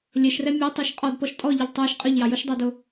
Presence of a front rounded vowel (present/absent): present